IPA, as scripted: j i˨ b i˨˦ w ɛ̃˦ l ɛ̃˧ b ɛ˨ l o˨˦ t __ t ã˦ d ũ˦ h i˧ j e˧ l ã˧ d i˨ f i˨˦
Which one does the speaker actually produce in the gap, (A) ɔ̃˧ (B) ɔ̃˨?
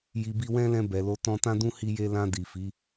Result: A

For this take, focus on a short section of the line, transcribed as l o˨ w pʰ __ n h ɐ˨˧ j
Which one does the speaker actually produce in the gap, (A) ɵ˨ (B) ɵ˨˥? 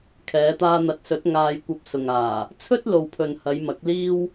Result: A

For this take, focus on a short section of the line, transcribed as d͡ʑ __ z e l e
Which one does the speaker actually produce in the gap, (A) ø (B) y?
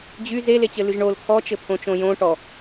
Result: B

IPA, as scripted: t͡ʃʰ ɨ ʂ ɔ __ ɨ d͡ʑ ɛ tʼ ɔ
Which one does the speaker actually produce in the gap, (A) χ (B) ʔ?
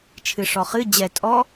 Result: A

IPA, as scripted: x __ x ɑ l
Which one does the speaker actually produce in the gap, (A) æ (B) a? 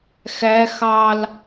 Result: A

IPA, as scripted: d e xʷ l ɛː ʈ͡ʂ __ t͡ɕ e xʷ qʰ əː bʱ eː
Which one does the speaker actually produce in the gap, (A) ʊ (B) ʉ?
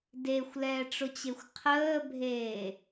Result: A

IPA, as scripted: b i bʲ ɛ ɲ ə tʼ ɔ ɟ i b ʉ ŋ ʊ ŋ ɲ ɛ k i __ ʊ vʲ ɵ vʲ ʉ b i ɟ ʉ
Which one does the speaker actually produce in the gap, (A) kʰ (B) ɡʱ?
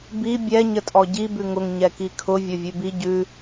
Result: A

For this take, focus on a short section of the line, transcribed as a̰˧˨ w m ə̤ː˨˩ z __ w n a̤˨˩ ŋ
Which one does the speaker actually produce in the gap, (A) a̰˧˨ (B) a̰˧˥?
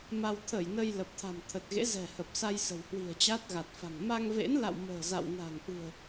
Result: A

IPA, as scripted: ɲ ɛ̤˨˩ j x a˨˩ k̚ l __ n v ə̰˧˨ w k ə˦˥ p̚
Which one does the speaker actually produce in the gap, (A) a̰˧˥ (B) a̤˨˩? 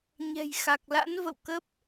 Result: A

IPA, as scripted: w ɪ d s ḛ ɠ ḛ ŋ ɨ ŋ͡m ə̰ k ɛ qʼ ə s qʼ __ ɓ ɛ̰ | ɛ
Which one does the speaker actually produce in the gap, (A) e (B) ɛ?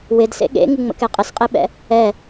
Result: A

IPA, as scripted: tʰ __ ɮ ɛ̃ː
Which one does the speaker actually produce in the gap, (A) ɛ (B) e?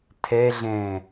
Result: A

